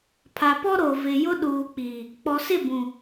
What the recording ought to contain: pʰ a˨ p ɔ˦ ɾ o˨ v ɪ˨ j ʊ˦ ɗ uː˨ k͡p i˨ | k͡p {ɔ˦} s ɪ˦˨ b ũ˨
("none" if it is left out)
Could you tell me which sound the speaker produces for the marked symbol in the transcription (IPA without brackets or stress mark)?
ɔ˨